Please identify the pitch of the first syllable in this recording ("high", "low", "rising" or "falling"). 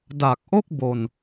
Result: low